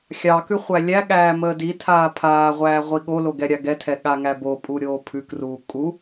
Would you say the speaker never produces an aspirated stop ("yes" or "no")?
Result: no